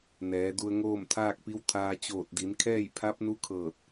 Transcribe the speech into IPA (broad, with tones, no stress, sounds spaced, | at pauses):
n ɛː˩˧ d u˧ ə̯ ŋ oː˥˨ m t̪ʰ aː˥˨ k̚ p i˧˥ w t̪ʰ aː˧ t͡ɕ oː˧˩ t̚ d i˩˧ n kʰ ɛː˥˨ j pʰ a˧˥ p̚ n u˧˥ kʰ ɤː˧˩ t̚